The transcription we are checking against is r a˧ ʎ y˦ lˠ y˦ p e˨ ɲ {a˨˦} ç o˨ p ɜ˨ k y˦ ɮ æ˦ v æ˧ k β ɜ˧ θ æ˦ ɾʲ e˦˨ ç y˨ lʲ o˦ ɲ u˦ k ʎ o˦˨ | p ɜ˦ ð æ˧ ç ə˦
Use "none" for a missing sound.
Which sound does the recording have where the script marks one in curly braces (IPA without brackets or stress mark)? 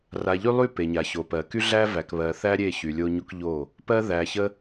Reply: a˨